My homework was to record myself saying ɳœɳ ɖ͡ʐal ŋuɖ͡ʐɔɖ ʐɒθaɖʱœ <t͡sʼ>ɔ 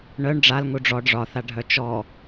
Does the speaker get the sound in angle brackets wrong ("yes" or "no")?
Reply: yes